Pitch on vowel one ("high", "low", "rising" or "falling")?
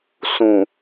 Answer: low